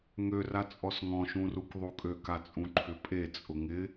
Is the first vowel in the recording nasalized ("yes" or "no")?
no